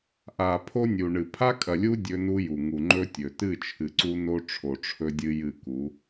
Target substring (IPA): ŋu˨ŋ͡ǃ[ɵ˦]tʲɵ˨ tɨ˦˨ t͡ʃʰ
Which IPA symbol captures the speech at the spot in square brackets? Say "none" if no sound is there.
ɵ˦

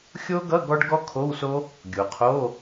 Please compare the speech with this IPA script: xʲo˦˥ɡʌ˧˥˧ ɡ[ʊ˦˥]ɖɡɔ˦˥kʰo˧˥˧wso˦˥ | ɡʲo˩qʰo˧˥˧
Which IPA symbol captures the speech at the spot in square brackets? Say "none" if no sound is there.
ɔ˦˥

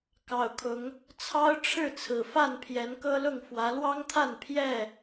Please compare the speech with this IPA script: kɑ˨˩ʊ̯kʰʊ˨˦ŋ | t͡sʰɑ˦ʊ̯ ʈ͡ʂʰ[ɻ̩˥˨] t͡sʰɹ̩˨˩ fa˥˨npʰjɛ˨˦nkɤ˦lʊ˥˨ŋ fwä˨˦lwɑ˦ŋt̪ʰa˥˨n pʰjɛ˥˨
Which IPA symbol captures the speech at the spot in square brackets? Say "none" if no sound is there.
ɻ̩˥˨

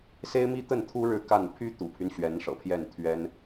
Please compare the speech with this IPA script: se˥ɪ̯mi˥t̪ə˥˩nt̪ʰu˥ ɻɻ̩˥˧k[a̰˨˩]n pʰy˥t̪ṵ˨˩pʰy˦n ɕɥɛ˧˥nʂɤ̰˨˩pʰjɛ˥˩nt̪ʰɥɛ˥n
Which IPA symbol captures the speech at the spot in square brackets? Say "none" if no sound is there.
a˥˩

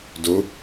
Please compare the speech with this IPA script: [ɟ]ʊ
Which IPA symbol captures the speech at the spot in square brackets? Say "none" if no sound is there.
d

